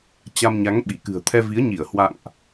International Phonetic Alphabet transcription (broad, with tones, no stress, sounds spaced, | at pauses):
t͡ɕ a˧ m ɲ a˨˦ ŋ ɓ i˧˩ k ɨ̤˨˩ ə̯ t̪ʰ ɛ˧ v i˨˦ ə̯ ɲ i˧˩ ə̯ h w a̰˧˨ ŋ ʔ